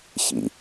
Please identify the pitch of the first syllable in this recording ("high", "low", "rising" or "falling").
low